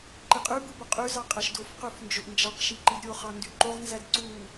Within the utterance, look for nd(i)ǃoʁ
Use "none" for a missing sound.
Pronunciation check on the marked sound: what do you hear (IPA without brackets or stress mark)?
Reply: y